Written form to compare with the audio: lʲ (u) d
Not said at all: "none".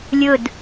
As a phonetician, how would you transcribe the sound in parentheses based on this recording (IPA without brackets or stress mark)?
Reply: ʊ